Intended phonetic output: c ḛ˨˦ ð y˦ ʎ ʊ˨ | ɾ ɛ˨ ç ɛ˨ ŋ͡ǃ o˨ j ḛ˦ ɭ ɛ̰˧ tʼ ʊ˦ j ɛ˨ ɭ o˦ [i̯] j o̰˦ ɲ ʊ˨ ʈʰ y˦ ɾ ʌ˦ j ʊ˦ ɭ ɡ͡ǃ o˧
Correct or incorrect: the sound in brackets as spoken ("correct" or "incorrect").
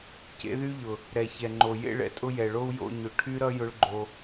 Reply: incorrect